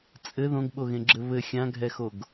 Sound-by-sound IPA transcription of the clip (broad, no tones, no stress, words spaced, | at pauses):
t͡sʼɘ ðõɡɓoɣẽɡ͡ǁɘ βɘ xʲãɡʱɛxoɡ